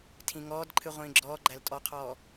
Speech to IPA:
tʰ ĩ ŋ ɔː d ǃʰ ɨ ʁʷ ĩː ɡ͡ǁ ɔː ɡ͡ǃ æ l tʼ ɔ qʰ ɔː

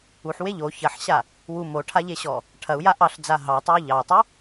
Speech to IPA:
u ħ w e ʎ o ç ɐ ħ ɕ a | w u m o ʈʰ a ʎ e ɕ ɔ | ʈʰ ɐ u̯ j a ʔ ɑ ɬ d͡z a ɦ ɑ tˤ o u̯ ʎ ɑ tˤ u

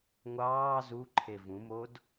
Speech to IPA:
ŋʷ ɑː z u ǃʰ e v ũ m o d

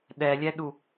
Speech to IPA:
ɗ ɛ lʲ ɛ ɗ u

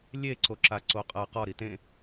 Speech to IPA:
lʲ e ǀ o ǁ a ǀ o qʼ ɐ q ɔ ɾ i t ẽ

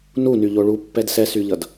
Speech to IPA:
n u n y ʎ o ɭ u pː ɛ d s ɛ s y ʎ ʌ d

